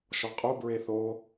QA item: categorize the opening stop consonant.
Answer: ejective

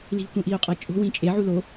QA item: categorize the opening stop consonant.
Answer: plain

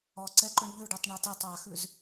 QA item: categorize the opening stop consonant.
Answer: click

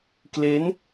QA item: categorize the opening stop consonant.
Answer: plain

